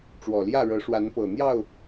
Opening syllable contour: low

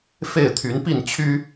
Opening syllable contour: falling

